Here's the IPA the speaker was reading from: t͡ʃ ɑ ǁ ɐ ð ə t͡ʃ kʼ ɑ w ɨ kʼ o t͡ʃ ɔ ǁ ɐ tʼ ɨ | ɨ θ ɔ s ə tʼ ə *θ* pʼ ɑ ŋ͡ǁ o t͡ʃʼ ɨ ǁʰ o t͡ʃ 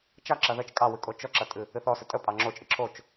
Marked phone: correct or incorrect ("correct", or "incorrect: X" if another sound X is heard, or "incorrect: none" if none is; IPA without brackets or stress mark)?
incorrect: none